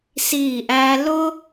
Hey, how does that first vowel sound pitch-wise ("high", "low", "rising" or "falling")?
falling